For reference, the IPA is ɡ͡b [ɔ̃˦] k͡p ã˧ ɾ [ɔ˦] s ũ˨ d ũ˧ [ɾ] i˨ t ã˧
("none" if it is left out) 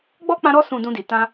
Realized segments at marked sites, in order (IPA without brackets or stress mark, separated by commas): ɔ˦, ɔ˧, d